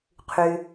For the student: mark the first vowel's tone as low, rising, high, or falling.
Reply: low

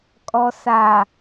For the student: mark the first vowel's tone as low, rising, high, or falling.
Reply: low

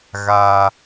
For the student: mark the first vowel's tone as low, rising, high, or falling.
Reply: high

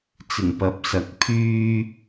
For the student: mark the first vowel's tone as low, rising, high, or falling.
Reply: low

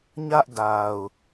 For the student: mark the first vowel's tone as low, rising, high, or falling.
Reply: high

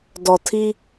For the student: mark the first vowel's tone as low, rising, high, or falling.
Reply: low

